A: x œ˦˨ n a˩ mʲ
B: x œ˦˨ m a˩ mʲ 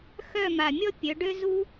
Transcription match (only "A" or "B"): B